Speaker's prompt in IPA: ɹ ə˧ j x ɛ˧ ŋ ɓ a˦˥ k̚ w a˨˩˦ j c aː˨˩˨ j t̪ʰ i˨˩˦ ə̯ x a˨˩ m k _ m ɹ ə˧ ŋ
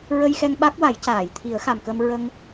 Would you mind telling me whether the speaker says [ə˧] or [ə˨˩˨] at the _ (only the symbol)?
ə˧